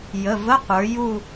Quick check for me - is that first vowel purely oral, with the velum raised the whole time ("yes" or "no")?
yes